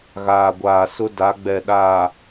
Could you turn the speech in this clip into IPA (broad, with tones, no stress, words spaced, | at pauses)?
ɣaː˨ɡʷaː˨sʊ˦ da˨˦ɡ͡bɛ˨ɗaː˨